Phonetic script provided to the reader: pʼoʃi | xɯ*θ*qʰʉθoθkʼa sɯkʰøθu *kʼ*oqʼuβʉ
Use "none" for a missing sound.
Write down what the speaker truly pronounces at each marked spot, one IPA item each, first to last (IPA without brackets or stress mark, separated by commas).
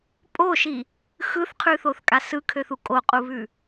θ, kʼ